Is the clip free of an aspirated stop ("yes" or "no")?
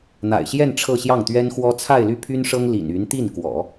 no